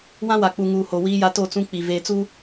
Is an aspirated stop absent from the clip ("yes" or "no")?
yes